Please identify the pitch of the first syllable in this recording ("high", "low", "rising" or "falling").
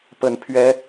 low